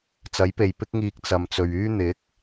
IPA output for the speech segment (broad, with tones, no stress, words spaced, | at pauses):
t͡sɐ˨˥jpe˨jpɪ˥k̚ŋiː˧k̚ t͡sɐ˨mt͡sɵ˨ɥyː˥ n̪ɪ˨˥k̚